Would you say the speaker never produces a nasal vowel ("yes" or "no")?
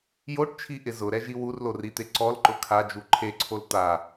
yes